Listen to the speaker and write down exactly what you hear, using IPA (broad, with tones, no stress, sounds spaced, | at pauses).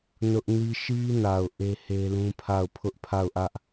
n ʊ˦ ʔ n i˦ ʃ i˦ n a˨ ʊ̯ ʔ e˦ h e˦ l ũ˦ pʰ a˦˨ ʊ̯ pʰ ʊ˦ ʔ pʰ a˦˨ ʊ̯ ʔ ä˦ ʔ